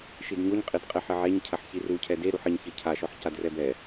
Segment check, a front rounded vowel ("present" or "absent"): absent